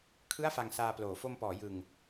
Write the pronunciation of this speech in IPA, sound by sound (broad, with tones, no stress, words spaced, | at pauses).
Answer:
kʰɯ˥˩a̯fa˧ŋsaː˧ploː˩˦ fo˧mpɔː˩˦ jɯ˧ŋ